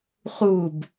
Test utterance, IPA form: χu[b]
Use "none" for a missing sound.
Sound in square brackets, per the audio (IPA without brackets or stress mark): b